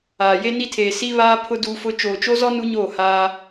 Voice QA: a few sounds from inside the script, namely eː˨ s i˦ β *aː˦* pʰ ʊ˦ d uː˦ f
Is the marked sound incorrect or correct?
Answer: correct